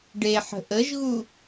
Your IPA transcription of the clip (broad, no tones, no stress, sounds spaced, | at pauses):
ɖ e ħ ə̤ ʔ ə ʒ ɣ u